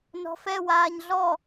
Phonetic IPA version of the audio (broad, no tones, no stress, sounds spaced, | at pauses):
n ɔ̤ f ɛ w aː ɲ ɮ ɔ